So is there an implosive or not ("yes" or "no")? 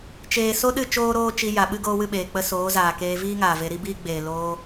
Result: yes